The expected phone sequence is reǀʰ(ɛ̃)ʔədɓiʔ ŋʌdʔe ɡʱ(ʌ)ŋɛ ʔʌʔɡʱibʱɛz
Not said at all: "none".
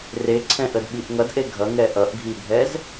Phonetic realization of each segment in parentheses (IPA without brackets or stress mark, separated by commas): ɛ̃, ʌ